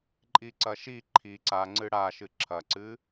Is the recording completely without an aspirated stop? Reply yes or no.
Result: no